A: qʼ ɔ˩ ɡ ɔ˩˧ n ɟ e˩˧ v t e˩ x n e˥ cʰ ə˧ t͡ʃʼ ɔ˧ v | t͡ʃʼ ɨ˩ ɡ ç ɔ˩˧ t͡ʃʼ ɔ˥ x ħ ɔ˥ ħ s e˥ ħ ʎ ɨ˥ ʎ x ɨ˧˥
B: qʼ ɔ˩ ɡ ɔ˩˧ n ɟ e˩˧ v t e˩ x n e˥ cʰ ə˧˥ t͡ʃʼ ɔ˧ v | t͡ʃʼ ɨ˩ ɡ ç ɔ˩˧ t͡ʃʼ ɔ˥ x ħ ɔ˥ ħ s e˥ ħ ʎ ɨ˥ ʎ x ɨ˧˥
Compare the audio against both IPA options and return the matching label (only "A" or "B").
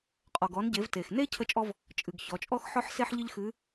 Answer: B